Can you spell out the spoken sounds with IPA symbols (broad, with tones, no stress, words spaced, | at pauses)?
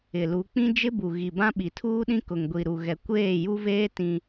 ɪ˨lu˨˦k͡pĩ˦ d͡ʒɪ˦ bu˨ɣi˨ bã˦ɓi˨tʰuː˦ɗĩ˦ kʊ˨ŋɡʷi˨ɾu˨ɣɛ˨ kʷeː˦˨ju˦veː˦ tĩ˦